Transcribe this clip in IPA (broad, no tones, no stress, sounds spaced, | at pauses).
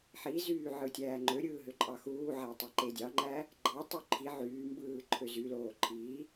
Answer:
ħ i z yː ʕ ɯ tʲ æː ŋ͡ǃ ø ɾʲ ɯː ɦ ø ǃʼ ɑ x uː ʕ æ tˤ i ǃ e dʲ ɑ ŋ͡ǃ æ | ɡ͡ǃ ɑ tˤ y ǃʰ i ʕ yː m b ɯː ǃʰ ø z y l oː ǃʰ iː